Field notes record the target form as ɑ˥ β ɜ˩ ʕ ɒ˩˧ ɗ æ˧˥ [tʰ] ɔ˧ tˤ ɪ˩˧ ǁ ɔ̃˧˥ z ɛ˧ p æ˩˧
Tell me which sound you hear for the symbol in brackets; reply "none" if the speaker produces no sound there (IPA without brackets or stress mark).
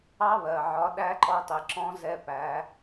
ǃ